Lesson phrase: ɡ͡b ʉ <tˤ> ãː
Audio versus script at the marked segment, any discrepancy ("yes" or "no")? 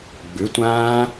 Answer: yes